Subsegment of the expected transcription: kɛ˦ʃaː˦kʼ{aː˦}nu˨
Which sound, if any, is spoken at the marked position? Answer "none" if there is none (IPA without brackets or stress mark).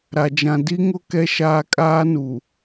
aː˦